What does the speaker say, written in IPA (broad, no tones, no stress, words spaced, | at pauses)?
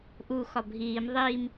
ʔuxɒ bʱiːm ðˤiːm